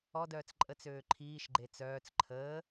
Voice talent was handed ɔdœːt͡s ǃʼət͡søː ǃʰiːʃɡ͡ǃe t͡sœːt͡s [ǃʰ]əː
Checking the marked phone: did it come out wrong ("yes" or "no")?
no